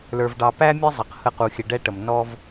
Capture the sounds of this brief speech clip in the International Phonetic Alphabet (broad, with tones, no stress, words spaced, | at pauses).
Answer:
lə˞˨vɖɑ˨pæ˦ mʲə˦zˤʌ˨q hə˦˨qu˨xʲə˨ ɖɛ˦ʈə˨m nɔ˦v